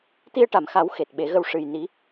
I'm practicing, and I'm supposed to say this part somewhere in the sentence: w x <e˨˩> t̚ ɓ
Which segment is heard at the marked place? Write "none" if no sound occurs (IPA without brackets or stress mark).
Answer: e˨˩